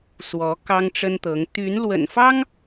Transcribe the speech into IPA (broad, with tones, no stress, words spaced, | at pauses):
swɔ˨˦kɑ˦ŋʈ͡ʂə˦nt̪ɤ˨˦ŋ t̪y˨˦n lwə̰˨˩nfɑ˦ŋ